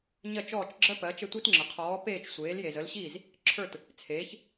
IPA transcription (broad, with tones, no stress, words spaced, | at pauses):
ɲɜ˥˩t͡ʃɔː˥˩t͡ʃɡ͡ǁɜ˥ pɜ˩˥ t͡ʃə˥˩tʷi˥tŋ͡ǁə˩ qʰɔː˩˥peː˥˩t͡ʃ sʷeː˩˥lje˩zə˩˥lɕiː˥˩z | ǁʰə˞˥˩t | t͡sʰeː˩˥ç